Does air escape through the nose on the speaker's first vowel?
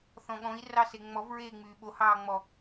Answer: yes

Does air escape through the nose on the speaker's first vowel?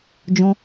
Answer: yes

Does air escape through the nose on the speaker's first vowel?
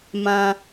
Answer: yes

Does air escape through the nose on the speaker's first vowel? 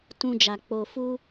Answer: yes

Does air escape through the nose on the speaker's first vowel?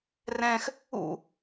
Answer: yes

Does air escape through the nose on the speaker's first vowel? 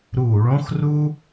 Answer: no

